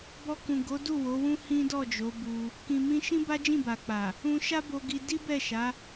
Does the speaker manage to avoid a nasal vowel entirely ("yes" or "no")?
no